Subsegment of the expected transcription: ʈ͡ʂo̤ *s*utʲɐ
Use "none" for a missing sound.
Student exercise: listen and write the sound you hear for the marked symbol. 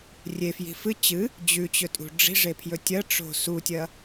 s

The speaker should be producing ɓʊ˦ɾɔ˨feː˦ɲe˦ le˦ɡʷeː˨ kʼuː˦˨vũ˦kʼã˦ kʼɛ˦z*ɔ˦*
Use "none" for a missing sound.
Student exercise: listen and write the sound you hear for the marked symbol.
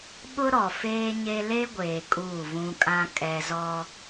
ɔ˦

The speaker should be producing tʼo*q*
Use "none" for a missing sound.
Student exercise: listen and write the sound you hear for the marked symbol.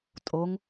ŋ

